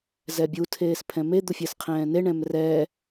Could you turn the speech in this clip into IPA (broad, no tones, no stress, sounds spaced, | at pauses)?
z ɛ bʲ u tʰ eː s pʰ ɛ̃ m e d̪ u fʲ ɛ s qʰ ɛ̃ː n e ɳ ɛ̃ m r ɛ